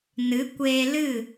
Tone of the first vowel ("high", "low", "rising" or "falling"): rising